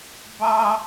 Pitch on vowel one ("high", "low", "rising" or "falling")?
high